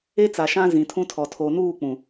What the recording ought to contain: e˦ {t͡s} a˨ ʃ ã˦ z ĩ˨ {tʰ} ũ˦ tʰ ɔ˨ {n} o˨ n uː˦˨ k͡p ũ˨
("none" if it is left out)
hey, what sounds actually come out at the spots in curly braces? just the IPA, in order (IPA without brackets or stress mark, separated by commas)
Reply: t͡s, tʰ, tʰ